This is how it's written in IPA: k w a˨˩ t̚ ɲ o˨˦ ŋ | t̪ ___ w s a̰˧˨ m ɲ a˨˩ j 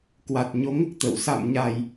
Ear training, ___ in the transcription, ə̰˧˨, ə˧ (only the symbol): ə̰˧˨